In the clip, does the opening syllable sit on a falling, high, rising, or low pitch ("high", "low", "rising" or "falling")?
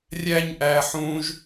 high